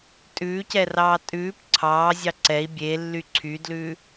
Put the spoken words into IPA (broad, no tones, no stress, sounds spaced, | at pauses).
tʼ ʉː c ɛ r ɑː tʼ ʉː p ǀʰ ɑː zʲ ɑ ǀ ɛ i̯ bʲ e lː y ǀʰ y d l ʉː